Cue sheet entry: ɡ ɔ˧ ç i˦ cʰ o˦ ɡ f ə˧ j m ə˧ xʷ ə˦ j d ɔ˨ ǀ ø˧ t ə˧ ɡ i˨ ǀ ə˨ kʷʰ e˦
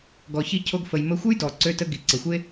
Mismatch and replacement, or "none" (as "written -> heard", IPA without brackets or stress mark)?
kʷʰ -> xʷ